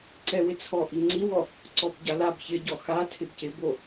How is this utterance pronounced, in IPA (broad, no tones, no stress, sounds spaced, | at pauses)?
ǀ ɛ w ɪ t͡sʰ ɔ ʔ i ŋ͡ǀ i w ɔ | ǀ ɔ b ɟ a l a b ç ɪ ɟ ɔ x a tʰ ɪ b c ɪ b o